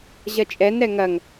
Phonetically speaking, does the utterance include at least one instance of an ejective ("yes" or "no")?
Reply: yes